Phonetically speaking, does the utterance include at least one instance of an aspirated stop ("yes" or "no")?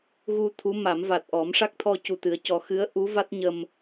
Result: yes